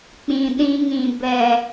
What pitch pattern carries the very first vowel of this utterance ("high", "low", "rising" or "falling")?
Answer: low